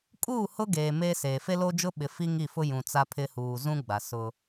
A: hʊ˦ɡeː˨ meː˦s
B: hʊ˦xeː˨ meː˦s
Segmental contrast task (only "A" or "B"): A